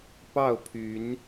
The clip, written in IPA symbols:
p ɑ˥˨ ʊ̯ pʰ y˨˦ n

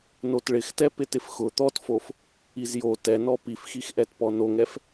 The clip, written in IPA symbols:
n o t ɭ ɪ x t ɛ p ɪ t ɪ f x ʊ t̪ ɔ t f o f | i z j o t ɛ n ɔ p i f x i x ʔ ɛ t p ɔ n o ŋ ɛ f

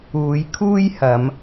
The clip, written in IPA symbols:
uː˨˧ j kʰ uː˥ j h ɐ˨˧ m

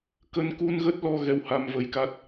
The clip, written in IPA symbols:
k ə˧ n k u˧ n ɣ ə˦˥ t̚ l ɔ˧ ɣ ɛ˧ w h a˧ m v ə˨˦ j k a˦˥ t̚

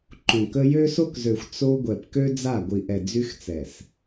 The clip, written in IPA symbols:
ǃ õ˨ k ə˦ j ø˦ s o˦ k z ø˨ xʷ t͡s o˦ ɡʷ ɛ˨ p k ø˦ d͡z a˦˨ ɡʷ i˨ ʔ ɛ˨ d͡z y˦ x t͡s ɛ˨ s

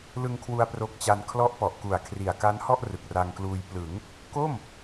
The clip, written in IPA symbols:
l ɯ˧ ŋ kʰ w u˧ a̯ p r o˦˥ k̚ t͡ɕ a˧ n kʰ l ɔ˦˥ ʔ p ɔ˨˩ ʔ k u˨˩ a̯ kʰ r i˨˩ a̯ k a˦˥ n h ɔ˥˩ ʔ r ɯ˨˩ k̚ r a˧ ŋ k l uː˧ j p l ɯ˩˦ ŋ | k o˥˩ m

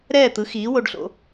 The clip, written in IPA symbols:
ɾ ɛː˥˩ t̪ ɯ˩˥ x iː˩˥ w o˧ ɖ ɬ o̰˧

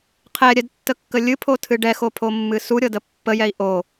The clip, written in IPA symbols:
qʰ ɛ ɾʲ ɛ d tː ə kː ə lʲ ɨ pʰ o tʰ ɨ ɖ ɛ x o pʰ o mː ɨ s u ɾʲ ɤ d ə pː ə j ɛ i̯ ʔ o

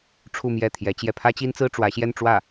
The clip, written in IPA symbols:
ʈ͡ʂʰ u˥˧ m j ɛ˥˩ t̪ʰ j ɛ˧˥ t͡ɕ j ɛ˥˩ pʰ ä˥ t͡ɕ i˥ n t͡s ɹ̩˥ ʈ͡ʂ w ä˧˥ ɕ j ɛ˥˧ n ʈ͡ʂ w ä˥˩

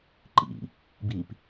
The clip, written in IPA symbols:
ǃ ḭ | b i p

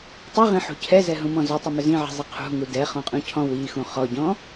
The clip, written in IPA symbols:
tˤ i ʁ ĩ ħ ṳ cʰ ɛ z ɛ ɦ ũ m ɔ̃ z ʏ tˤ ʏ m ʏ z ĩ ʕ i̤ zˤ i qʰ ṳ ŋ u d ɛ χ ɔ̃ qʼ ũ cʰ ɔ̃ w i x ũ χ ɔ ɟ ɔ̃

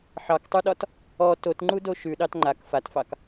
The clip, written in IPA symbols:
ħ ɑ k tˤ ʉ ɗ ɒ t | ɔ t o t ŋ͡ǃ u d o ʃ ʉ ɗ ɑ t ŋ͡ǃ a k f a t f ɑ k

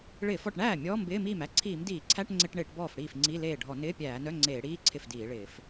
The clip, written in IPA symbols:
ɭ ɪː˧˩˧ f ɔ˥˩ ʈ ɳ æː˥˩ mʲ ɔː˧˥˧ m b ɪː˧˥˧ m iː˥˩ m æ˧˥˧ ǀʰ iː˧˩˧ m d iː˧˩˧ ǀʰ æ˧˥˧ ʈ ŋ͡ǀ ɪ˧˥˧ ʈ ɳ ɪː˧˩˧ ʈ b ɔː˥˩ f ɽ iː˥˩ f ŋ͡ǀ i˧˥˧ l eː˥˩ ɖʱ ɔ˧˩˧ n ɪː˧˥˧ pʲ æː˧˩˧ n œ˧˥˧ ŋ͡ǀ eː˧˩˧ ɽ iː˧˥˧ ǀʰ ɪ˥˩ f d iː˧˩˧ ɭ ɪː˧˩˧ f

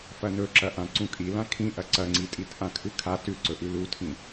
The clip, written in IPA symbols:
f ɐ n ɵ ǁ ɐ ʔ ã ǀ ũ kʼ i l ã kʰ ĩ ʔ ɐ ǀ ɐ ŋ͡ǀ i tʼ i t ʔ ã kʰ ɨ kʰ a t ʉ ǀ ɵ ʔ ʉ l u tʰ ĩ

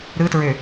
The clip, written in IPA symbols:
ɾ ɯ t ɹ ø

